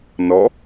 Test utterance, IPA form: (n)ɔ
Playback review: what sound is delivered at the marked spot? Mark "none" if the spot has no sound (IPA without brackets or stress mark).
n